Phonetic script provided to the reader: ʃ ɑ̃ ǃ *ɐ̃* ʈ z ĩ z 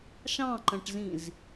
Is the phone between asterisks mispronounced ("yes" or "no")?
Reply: no